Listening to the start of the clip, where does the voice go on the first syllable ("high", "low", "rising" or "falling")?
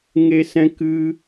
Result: high